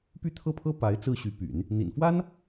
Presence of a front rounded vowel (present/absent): present